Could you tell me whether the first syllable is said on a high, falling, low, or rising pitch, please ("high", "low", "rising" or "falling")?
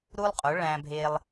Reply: high